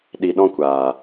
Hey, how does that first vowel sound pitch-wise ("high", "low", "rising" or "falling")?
low